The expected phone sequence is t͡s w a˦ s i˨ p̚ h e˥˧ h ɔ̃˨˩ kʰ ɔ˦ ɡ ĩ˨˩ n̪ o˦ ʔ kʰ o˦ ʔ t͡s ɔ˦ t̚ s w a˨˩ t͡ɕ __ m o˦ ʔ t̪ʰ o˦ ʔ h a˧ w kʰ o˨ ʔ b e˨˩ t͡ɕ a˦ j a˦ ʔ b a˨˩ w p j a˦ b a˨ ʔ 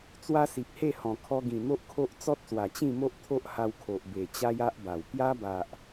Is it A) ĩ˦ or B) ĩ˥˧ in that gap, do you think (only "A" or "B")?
B